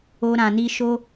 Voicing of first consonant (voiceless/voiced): voiced